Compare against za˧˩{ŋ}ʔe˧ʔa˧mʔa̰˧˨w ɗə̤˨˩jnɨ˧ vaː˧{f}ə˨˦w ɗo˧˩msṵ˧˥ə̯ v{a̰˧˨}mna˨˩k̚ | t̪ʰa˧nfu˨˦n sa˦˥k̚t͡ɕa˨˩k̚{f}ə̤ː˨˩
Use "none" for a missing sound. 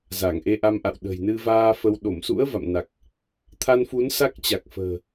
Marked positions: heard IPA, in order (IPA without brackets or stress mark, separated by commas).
ŋ, f, a̰˧˨, f